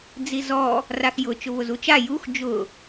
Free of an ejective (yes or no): yes